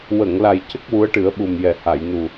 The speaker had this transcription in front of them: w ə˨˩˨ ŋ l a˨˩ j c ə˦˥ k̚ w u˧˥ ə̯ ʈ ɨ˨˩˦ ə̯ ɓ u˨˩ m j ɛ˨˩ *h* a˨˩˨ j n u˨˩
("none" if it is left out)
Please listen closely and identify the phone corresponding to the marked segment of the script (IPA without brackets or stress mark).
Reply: h